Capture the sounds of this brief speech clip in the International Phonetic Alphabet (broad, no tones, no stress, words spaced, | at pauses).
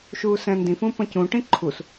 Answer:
ʃuːsɛ̃ndĩfũ pɐ̃cũʈĩ ǃʰus